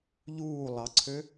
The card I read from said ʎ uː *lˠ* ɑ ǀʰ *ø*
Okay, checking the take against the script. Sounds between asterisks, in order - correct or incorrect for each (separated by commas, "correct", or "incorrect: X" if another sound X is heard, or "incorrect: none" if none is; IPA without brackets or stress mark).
correct, correct